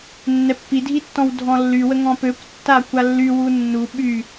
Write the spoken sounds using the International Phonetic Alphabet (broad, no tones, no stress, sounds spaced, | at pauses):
nː ɛ pː i dʱ i tː ɔ̃ w dʱ ɔ̃ lː y w ə ŋ ɔ̃ p ø kʷ tː a kʷ a lː y w u nː u ɓ y